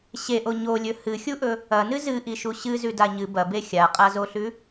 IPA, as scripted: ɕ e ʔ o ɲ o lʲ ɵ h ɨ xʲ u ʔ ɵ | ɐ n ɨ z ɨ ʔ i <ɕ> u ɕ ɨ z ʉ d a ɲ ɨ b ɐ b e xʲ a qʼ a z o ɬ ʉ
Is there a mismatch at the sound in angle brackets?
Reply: yes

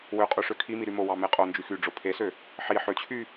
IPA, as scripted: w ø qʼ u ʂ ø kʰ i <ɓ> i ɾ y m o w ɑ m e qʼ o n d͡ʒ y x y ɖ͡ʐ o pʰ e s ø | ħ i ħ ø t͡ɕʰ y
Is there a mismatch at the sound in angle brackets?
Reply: yes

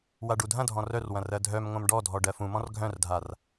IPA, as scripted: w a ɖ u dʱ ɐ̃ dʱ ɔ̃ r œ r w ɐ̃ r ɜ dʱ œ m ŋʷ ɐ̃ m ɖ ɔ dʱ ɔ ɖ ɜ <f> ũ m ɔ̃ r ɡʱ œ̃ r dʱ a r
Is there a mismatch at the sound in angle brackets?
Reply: no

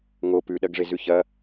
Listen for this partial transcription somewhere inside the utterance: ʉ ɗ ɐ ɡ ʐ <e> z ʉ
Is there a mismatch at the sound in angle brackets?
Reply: no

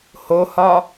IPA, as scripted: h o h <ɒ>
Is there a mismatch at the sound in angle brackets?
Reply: no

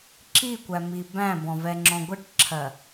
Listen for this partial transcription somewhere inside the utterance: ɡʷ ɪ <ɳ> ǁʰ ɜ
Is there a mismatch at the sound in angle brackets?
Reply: yes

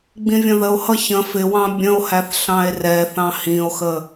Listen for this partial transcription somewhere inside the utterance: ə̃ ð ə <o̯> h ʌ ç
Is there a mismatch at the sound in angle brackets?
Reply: no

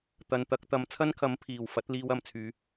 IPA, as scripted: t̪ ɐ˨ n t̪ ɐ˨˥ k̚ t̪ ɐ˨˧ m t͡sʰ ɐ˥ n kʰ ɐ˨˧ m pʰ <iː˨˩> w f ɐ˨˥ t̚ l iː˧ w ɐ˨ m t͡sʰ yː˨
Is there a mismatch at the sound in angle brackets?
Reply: no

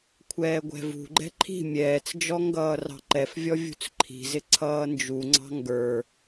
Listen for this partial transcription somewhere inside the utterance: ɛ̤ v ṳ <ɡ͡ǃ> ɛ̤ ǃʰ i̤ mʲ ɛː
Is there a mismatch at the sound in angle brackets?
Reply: no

